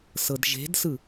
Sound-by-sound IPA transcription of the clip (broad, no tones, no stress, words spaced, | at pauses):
sɤdʒe̤dsɯ